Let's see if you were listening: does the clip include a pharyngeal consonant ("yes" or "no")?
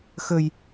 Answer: no